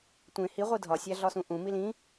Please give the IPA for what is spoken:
tʷ ẽ h i ʁʷ i dʱ ɒ sʲ æ ɮ ɒ s ũ ʔ ũ m i l ĩ

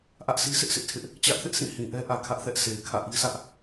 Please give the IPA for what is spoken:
ʔ ä˦ ʔ sʰ i˦ sʰ ɪ˦ ʔ s ɪ˦ ʔ tʰ ɪ˦ ʔ | t͡ɕ ä˦ ʔ θ ɪ˦ ʔ sʰ ĩ˦˨ h ĩ˨ ʔ ɛ˦ ʔ ä˨ kʰ ä˦ ʔ θ ɛ˦ ʔ s e˨ ɪ̯ kʰ ä̰˦˨ ʔ i˦ sʰ ä˦ ʔ

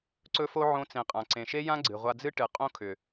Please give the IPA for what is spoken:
ǀ ɵ˦ f o˦ ʕ õ˦ t͡s ẽ˧ qʼ ã˨ ǀ ẽ˨ ʃ e˦ j ã˦ ɡ͡ǀ ɨ˨ ʁʷ a˧ d͡z ɨ˦ ʈ ɨ˨ qʼ õ˦ kʰ ʏ˨

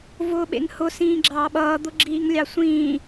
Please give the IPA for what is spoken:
v ʊː ɓ ḛ ŋ h ʊ s ĩː ɡ͡ǁ ɑː ɓ ʌː d̪ ʊ ɡ͡ǁ iː ŋ lʲ ɑ sʷ ĩː

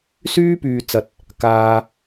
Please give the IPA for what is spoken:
s yː˥ p yː˨ t͡s ɐ˨ t̚ | k aː˨

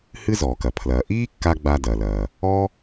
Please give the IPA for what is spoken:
h ɨ˥ z ɔː˩ k ɐ˩ pʰ l ɐː˩ ʔ iː˥ kː a˧ ɡ͡b a˧ d ɐ˩ l ɐː˩ | ɔ˥

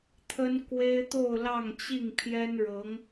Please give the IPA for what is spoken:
t̪ʰ ə˥ n k w e˥ ɪ̯ t̪ o˥˧ ʊ̯ l ɑ˥˧ ŋ t͡ɕ i˥˩ ŋ pʰ j ɛ˥ n ɻ ɤ˧˥ ŋ

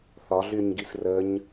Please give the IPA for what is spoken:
θ ɒ ɮ y ɲ ɡ i s r ə ɲ

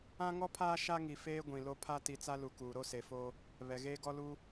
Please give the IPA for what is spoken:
ã˦ ŋ ɔ˦ pʰ aː˦ ʃ a˦ ŋ i˨ f eː˦ ɡʷ ĩ˨ l o˦ pʰ a˦ t i˨ t͡s a˦ l u˨ k uː˨ ɾ o˦ s e˨ f oː˦ | β ɛ˨ ɣ eː˦ ɡ ɔ˦ l uː˦

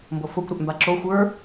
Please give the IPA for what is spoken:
m b o f o kʷ ɾ ʏ ʔ m b a ǁ o xʷ ə˞

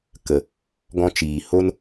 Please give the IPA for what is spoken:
k ə˨ | ɡ ɔ̃˧ t͡ʃ iː˨ h o˦ n

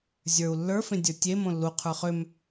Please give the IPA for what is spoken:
zʲ ə˞ u̯ lː ə˞ f ẽ dʲ ə˞ tʲ e m õ lː u qʰ ə˞ χ ʏ m

